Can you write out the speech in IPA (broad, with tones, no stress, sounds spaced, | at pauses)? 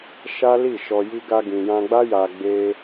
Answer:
ʃ a˦ l i˦˨ ʃ ɔ˧ j i˦ ɡ a˧ ɡ ĩ˨ j ã˧ ɡ͡b a˦ j a˧ ɡ͡b e˦